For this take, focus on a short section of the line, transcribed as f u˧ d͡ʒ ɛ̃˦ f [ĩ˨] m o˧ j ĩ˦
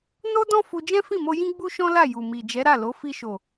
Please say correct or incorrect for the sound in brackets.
incorrect: ĩ˦˨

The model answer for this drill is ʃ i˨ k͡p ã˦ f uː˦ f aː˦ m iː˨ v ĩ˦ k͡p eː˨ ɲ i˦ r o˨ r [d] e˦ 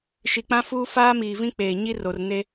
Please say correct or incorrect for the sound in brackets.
incorrect: n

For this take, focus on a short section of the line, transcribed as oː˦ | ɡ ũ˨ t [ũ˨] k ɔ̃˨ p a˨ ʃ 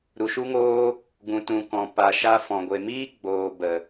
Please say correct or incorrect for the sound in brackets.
correct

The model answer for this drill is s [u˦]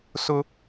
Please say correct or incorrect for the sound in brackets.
incorrect: ʊ˦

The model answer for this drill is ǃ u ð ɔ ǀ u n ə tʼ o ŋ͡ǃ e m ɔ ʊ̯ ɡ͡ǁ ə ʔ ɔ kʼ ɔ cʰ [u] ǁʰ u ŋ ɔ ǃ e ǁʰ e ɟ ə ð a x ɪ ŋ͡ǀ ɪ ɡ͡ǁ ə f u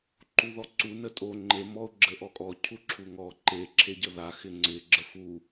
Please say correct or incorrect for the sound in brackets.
correct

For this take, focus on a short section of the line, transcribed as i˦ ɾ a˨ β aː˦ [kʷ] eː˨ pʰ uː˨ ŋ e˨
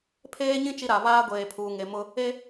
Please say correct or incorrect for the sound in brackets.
incorrect: ɡʷ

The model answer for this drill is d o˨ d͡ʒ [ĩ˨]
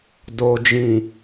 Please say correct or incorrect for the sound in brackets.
correct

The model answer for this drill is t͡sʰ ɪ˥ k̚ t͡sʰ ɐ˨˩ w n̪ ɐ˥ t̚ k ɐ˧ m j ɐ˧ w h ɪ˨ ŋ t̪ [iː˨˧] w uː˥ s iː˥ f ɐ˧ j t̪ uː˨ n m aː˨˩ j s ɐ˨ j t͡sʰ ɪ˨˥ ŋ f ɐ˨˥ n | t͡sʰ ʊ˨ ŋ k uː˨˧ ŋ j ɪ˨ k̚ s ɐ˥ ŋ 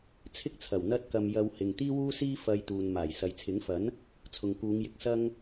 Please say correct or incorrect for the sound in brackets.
incorrect: iː˥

